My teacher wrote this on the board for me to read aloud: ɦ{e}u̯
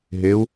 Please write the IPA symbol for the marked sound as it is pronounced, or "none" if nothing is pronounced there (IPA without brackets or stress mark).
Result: e